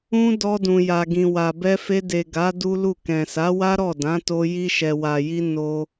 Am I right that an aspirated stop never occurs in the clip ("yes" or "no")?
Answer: yes